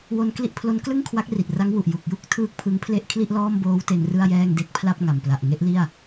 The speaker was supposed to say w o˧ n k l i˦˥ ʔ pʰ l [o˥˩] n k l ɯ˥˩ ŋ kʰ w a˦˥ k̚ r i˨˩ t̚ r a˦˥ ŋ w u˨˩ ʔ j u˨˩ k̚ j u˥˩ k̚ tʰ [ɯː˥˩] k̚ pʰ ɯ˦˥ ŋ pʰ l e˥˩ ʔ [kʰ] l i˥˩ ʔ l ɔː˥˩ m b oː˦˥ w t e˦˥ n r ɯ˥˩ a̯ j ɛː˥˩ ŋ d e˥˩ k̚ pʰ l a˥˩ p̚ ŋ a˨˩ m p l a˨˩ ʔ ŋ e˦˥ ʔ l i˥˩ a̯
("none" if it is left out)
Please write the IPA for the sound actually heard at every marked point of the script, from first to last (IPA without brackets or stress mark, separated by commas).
o˦˥, ɯː˥˩, kʰ